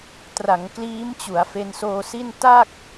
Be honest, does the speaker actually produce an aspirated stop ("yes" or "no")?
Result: no